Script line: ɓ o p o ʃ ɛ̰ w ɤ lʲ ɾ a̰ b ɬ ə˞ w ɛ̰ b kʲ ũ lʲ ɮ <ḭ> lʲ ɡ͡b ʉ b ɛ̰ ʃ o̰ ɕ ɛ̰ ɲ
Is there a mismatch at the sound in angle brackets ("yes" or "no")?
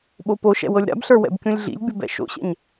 no